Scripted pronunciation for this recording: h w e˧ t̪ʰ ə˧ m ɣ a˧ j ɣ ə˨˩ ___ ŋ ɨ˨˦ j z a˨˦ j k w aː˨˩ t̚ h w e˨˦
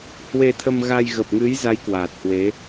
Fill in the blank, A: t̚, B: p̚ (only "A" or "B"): B